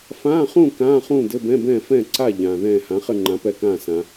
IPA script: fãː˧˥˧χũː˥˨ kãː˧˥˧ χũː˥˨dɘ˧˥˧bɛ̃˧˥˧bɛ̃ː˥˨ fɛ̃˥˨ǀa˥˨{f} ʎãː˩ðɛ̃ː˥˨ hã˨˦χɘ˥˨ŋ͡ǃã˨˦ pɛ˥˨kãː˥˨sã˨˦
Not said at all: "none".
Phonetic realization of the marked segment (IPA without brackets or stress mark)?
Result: none